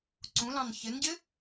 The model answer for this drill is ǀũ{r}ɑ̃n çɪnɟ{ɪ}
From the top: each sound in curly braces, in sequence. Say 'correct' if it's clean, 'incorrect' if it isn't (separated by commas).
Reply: incorrect, correct